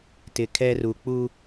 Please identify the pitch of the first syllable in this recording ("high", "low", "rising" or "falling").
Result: low